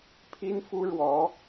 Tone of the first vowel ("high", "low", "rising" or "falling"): high